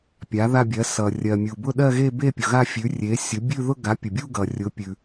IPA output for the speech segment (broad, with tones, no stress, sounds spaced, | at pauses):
pʲ a˩˥ ð a˥˧ bʲ ɜ˩˥ s ʌ˩ rʲ ɜ˩ mʲ u˩ b ʊ˥˧ ɗ ɜ˥˧ ɣ e˥˧ b e˥˧ pʲ ʊ˩ ɣ a˥˧ fʲ ʉ˩˥ rʲ e˩˥ sʲ ʊ˩˥ bʲ ʉ˥˧ ð ʊ˥˧ ɡ a˩˥ pʲ ʊ˩ bʲ u˥˧ ɡ ʌ˩ rʲ ʊ˩˥ pʲ ʉ˩